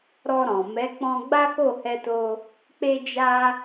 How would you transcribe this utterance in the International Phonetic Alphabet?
ɾ ɔ˧ ɾ ɔ̃˨ m ɛ˨˦ k͡p ɔ̃˧ ɡ͡b a˦ k o˦˨ h ɛ˧ t o˧ | k͡p e˧ d͡ʒ a˧

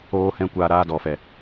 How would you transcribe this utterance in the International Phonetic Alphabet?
oː˦ h ɛ̃˦ kʷ aː˧ ɾ aː˧ d ɔ˨ f ɛ˨

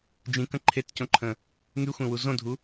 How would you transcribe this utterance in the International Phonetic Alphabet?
d͡ʒ ĩ k ə̃ ǃʰ e t c õ ǃʰ ə̃ | ŋ y xʷ ẽ w u z õ dʱ u

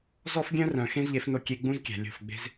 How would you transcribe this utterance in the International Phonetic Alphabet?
z ɔ˦ f ɡʲ œ̃˦ r œ̃˨ x ẽ˦ z ʎ e˨˦ f n o˧ kʲ e˧ ɡ͡b ũ˦ z kʲ æ̤˨ lʲ o̤˦˨ f ɡ͡b e̤˦ z

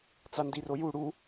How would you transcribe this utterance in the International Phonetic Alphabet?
t͡s a n d i r o j u ɽ u

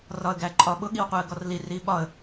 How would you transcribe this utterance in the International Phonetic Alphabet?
r ɒ ə̯ ɡ æ ǃʼ ɒ ɓ ʊ ɠ i w qʷ ɛ ə̯ ɡ ɔ r l i r i ɓ ɒ ə̯

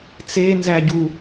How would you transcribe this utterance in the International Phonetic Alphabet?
t͡s e n z æ ɟ u

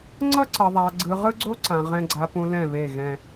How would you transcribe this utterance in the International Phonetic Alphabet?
ŋ͡ǀ ʌ˦ ǀ ʌ˨ ðˤ a˨ ɡ͡ǀ ɯ˨ ʁ ɯ˦ ɡ͡ǀ o˦ ǀ ã˨ ʁ ɛ̃˦ ɡ͡ǀ a˨ p ũ˨ l ɛ̃˦˨ β e˦˨ ɣ ɛ̃˦

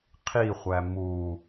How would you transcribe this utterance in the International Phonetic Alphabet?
qʰ i χʷ æ m u

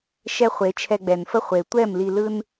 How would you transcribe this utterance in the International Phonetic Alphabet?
ʃ ɛ˧ χʷ e˨˦ t͡ʃʰ ɛ˧ ɡ͡b ɛ˨ n f ə˦ χʷ e˨ tʷ ɛ˦˨ m l i˧ l ɯ˦ n

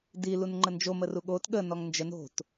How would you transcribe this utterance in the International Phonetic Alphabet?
d i l u n ŋ͡ǃ ə n d͡ʒ o m ə r u ɠ o t ɠ ə n ɔ ŋ n d͡ʒ ə n o̤ t

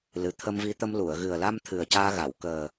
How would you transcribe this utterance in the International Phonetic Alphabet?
l ɨ˨˩ t̪ʰ ə˧ m v i˧˥ t̪ ə˧ m l u˨˩˨ ə̯ ɣ ɨ˨˩ ə̯ l a˧ m t̪ʰ ɨ˨˩ ə̯ c aː˧ ɣ a˨˩˨ w k əː˨˩

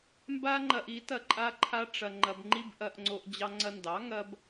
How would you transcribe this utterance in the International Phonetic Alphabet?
m b a˦ ŋ͡ǃ ɐ˧ ʔ i˨˦ t ɐ˧ ǃʼ a˧ ǃʰ a˧ ʈ͡ʂ ɐ˧ ŋ͡ǃ ɐ˧ b ŋ͡ǃ i˦ b ʔ ɐ˧ ʔ ŋ͡ǀ o˧ ʔ d͡ʑ ɑ˧ ŋ͡ǀ ɐ˧ n d ɑ˨˦ ŋ ɐ˦ b

